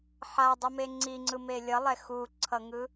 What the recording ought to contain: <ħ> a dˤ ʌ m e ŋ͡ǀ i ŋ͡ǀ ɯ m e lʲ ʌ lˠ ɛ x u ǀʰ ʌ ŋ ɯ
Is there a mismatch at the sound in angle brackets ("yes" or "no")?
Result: no